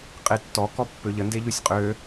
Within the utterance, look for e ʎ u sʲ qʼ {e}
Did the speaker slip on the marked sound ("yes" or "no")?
yes